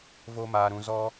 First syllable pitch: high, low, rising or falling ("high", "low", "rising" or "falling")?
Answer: high